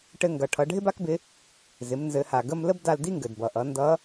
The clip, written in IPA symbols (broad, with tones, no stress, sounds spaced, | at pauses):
ʈ ɘ˧ ŋ ɡ ʌ˩ ʈʰ ʌ˩˧ ɖʱ ɪ˥ b a˥ k b ɪ˧˥ | z ɪ˩˧ m n z ɘ˩˧ h a˩ ɡ ə˧ m l ə˥ b d a˧ l d i˥ ŋ ɡ ɘ˩ d b ʌ˩ ʔ ʌ˩˧ n d ʌ˧˥